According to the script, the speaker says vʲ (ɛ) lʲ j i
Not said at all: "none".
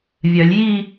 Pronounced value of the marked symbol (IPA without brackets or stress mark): œ